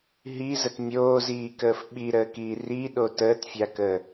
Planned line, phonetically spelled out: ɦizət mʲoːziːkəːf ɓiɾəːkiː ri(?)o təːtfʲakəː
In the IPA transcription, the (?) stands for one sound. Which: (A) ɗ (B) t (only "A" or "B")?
A